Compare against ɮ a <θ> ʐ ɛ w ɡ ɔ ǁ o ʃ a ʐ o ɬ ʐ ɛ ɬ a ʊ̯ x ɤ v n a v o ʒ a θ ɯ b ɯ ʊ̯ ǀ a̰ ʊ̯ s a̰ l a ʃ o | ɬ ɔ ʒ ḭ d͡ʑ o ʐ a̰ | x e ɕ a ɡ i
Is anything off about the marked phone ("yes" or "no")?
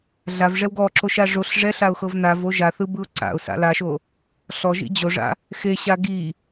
yes